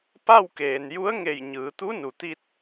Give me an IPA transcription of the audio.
pa˥˨w keː˩nju˧˥ə̯ŋe˧˩j ɲɯː˩˧t̪u˧˥nu˩t̪i˧t̚

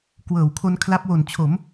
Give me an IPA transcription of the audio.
kwɤː˨˩wkʰo˧n kʰla˦˥p̚wo˨˩nt͡ɕʰo˩˦m

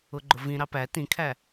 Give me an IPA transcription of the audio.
ʊɡ͡ǃʊvĩ ɾɑpæ tĩkʰæ

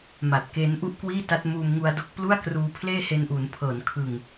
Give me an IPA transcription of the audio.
ma˨˩t̚keː˦˥nʔu˥˩ʔkwiː˥˩ ta˦˥t̚muː˧mŋu˧a̯do˦˥k̚ plu˥˩a̯kruː˧ pʰleː˥˩he˧nʔuː˩˦n pʰɤː˩˦nkʰɯ˨˩ŋ

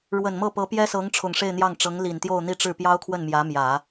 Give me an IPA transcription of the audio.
ɻwə˨˩nmɤ˥˩ pɤ˧˥ pjɛ˥sɤ˧˥ŋ ʈ͡ʂʰʊ˨˩ŋʂe˥˧ɪ̯ n̪jɑ˥˩ŋʈ͡ʂɤ˧˥ŋli˨˩n t̪jo˥˧ʊ̯n̪i˥˧ʈ͡ʂɻ̩˥˩ pjɑ˥ʊ̯kʰwə˥˩n mjä˧˥mjä˨˩˦

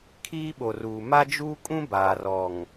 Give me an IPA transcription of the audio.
kʰiː˦ɓo˨ruː˨ ma˦d͡ʒuː˦kʼũ˦ baː˨rɔ˨ŋ

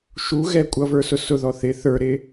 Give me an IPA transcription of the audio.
ʃuɣɛ kʷʼʌvə˞sʊ sʊðɔ θɪ θə˞ɾɪ

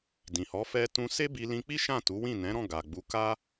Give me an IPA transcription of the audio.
dĩ˨hɔ˨˦ fɛ˧tũ˧ se˦bi˧ lĩ˧k͡pi˦ ʃã˦˨tu˨˦wĩ˦˨ nɛ̃˨˦ɾɔ̃˦˨ɡa˨ɡ͡bu˨˦ ka˦

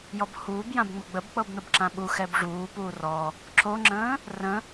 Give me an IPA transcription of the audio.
jɔbhuːb jãbŋ͡məɡ͡bəb k͡pɤbn̪əbǁãɓu xɛbʐuː puːrɔ | ǁoŋ͡ǁə̃ː | rə̃

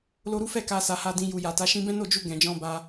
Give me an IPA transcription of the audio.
lo˧ɾu˦fɛ˦˨ ka˧ sa˧ha˧dĩ˧ ju˨ja˨ta˨˦ ʃĩ˧bɛ̃˦no˦˨ d͡ʒu˧ ɡɛ̃˨d͡ʒɔ̃˧ba˧

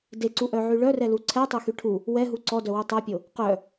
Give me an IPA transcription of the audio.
deǀuʔœʕy ɭœrɛlu ǀʰɛtˤøxy ʈʰu | wɛɦu ǀɔdœwy tˤœpʲo | qœ

